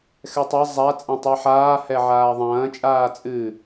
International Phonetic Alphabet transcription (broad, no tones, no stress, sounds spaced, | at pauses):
x ɛ tˤ a zˤ a t͡sʼ ɛ̃ tˤ ɛ ħ aː h ɛ ʕ aː ðˤ ɐ̃ː t͡ʃʼ aː t͡sʼ ɨ